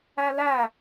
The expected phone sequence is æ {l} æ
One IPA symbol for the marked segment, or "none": l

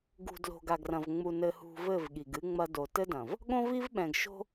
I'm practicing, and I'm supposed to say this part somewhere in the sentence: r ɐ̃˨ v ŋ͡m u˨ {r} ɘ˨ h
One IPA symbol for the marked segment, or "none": n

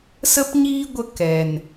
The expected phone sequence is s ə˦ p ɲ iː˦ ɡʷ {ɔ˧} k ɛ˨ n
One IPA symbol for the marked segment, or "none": ə˧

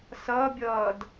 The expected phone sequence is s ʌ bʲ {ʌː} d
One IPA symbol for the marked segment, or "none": ʌː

